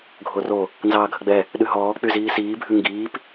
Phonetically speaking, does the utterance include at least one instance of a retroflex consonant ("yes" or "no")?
no